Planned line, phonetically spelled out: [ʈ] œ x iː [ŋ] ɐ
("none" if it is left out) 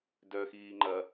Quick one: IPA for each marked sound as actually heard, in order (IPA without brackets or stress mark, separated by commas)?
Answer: d, ŋ͡ǃ